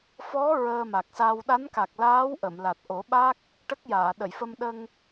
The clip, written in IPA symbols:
f ɔ˧˥ ɹ əː˧ m a˨˩ k̚ s a˧ w ɗ a˧˥ n k a˨˩ k̚ l aː˧˥ w ʔ ə˨˩˨ m l a˨˩ t̚ ʔ o˨˩˦ ɓ a˦˥ k̚ | ʈ ə˦˥ k̚ j aː˨˩˨ ɗ ə˨˩˨ j f ə˧ m ɗ ə˧ ŋ

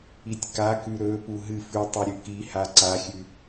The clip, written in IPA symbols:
i tʲ k a k ʉ ɾ ɵ p u ɦ ɨ f ʉ tˤ u ɾʲ ʉ k i h a ǀ a xʲ ʉ

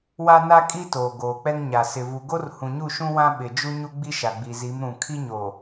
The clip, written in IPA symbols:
w a˦ n a˦ kʼ i˦ t oː˨ ɡ oː˨ k͡p ɛ˦ ŋ ɲ a˨ s ɪ˨ v u˨ ɡ o˦ r h ũ˨ ɲ u˦˨ ʃ ũ˦ w ã˦ ɓ ɪ˨ d͡ʒ u˦ ɲ u˦ ɡ͡b i˦ ʃ a˨ ɡ͡b i˨ z i˨˦ m ɾ ũ˨ kʰ i˦ ɲ o˨

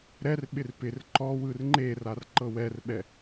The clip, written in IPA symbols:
ɾ ɛ r ɓ ɪ r p ɪ r ǃ ɔ w ɯ r ŋ͡ǃ e r a r ǃ ɤ w ɛ r ɓ ɛ

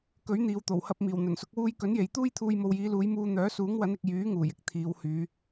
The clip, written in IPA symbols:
k ɵ˨˥ ɥ n̪ iː˨ w t̪ o˨˩ w h ɐ˧ p̚ m iː˨˩ w n̪ ɵ˨˩ n s ʊ˨˥ k̚ w uː˥ j k ɵ˨˥ n j e˨ j t̪ uː˥ j t̪ʰ uː˧ j m o˨ w j iː˨˧ l uː˨˧ j m uː˧ n̪ œː˨˥ s uː˨˥ ŋ w ɐ˨˥ n ɪ˨ k̚ j yː˨˥ ŋ uː˨˩ j ɪ˥ k̚ t̪ʰ iː˨˧ w h yː˨˧

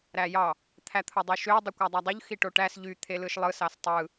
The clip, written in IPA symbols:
ɾ æ j ɑ | t̪ʰ æ t̪ʰ o dˤ y ʃ ø dˤ ɯ kʷ ɑ dˤ æ dˤ u ʎ x i ʈ o ʈ æ s ʎ y t̪ʰ e l ɯ ʃ lˠ ɯ s ɑ s tˤ ɯ

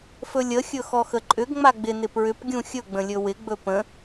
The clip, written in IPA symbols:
f ɵ lʲ ə xʲ ɵ x ɔ x ə ǃʼ ʏ ɡ ŋ͡m a ɡ͡b ɪ n ɪ p ɹ ʏ p ɡʲ ũ xʲ ɵ ɡ͡b ə̃ lʲ ɵ w ɪ ɡ͡b ɵ p ə̃

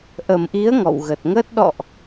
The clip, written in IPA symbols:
ʔ ə˨˩ m ʔ i˨˦ ə̯ ŋ ɔ̰˧˨ w ɣ ə˨˩ t̚ ŋ əː˦˥ t̚ ɗ ɔ̰˧˨ ʔ

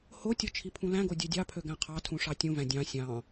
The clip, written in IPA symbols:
h o tʲ o t͡ʃʰ i pʰ ũ l æ̃ ɡ o dʲ ø dʲ ɑ pʰ ø ɡ æ̃ qʰ ɑ tʰ ũ ʂ ɑ tʲ ũ v æ̃ dʲ ɑ̃ sʲ ɑ̃

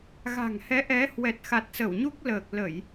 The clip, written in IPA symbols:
ɣ a̤˨˩ ŋ h ɛ˨˦ ʔ ɛ˨˦ h w ɛ˨˩ t̚ x a˨˩ t̚ s ə˧˩ w ɲ u˦˥ k̚ l əː˨˩ k̚ l ə˧˩˨ j

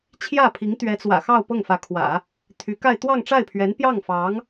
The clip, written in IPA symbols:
t͡ɕʰ j ä˥˩ pʰ i˧˥ ŋ t̪ ɥ ɛ˧˥ t͡s w ä̰˨˩ x ɑ˥˧ ʊ̯ p ɤ˥˩ ŋ f ä˧˥ kʰ w ä̰˨˩˦ | t̪ʰ y˧˥ k a˥˧ ɪ̯ t̪ w ɑ˥˧ ŋ ʈ͡ʂ a˥˩ ɪ̯ pʰ ɥ ɛ˧˥ n p j ɑ˥˩ ŋ f ɑ˧˥ ŋ

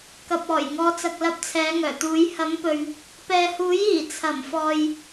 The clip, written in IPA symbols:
k ɐ˨ p̚ ɔː˨˩ j ŋ ɔː˨˧ t͡s ɐ˨ k̚ l ɐ˧ p̚ t͡sʰ ɛː˨˧ ŋ œː˨˩ t̪ uː˨˧ j h ɐ˨˥ m p ɵ˨ ɥ | p ɛː˨ h uː˨˥ j iː˨˩ t͡sʰ ɐ˨˩ m f ɔː˨ j

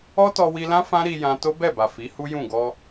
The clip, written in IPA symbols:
ɔ˦ t ɔ˧ w i˧ l ã˦ f ã˦ ɾ i˧ j ã˧ t o˦ b ɛ˦˨ b a˨ f i˨˦ h u˦ j ũ˦˨ ɡ ɔ˧

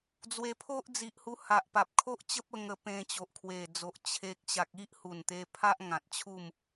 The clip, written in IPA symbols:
d͡z w e˧ pʰ o˦ ʔ d͡z i˨ ʔ h u˧ h a˨ ʔ p a˨ p̚ kʰ o˦ ʔ t͡ɕ ə˦ p̚ ə˧ ŋ ə˧ p ẽ˧ t͡ɕ o˨ ʔ kʰ w e˨˩ d͡z o˨ ʔ t͡ɕʰ e˨ k̚ ɕ a˨ k̚ i˦ ʔ h u˨˩ n t̪ e˧ pʰ a˦ ʔ ŋ ã˨ t̚ t͡ɕʰ u˥˧ m

